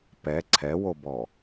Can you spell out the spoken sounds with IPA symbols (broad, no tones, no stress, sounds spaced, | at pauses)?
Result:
p ɛ ǀʰ ɛ w o b ɔ